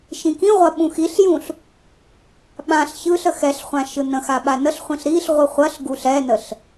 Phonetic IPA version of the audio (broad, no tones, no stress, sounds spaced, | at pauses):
ʃ ĩ k ĩ ʁʷ ɐ ɓ ũ x i ɬ j ũ ɬ | ɓ ã ɬ ç ɯ ɬ ə x ɛ ɬ χʷ ã ʃ ɯ n ə̃ x a ɓ a n ə ɬ χʷ ĩ ɬ ɾ i ɬ ʁʷ ɯ χʷ ɐ ɬ ɡ u ɬ ɛ n ə ɬ